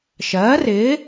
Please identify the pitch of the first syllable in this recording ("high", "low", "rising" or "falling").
rising